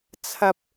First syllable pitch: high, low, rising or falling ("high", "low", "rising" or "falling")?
high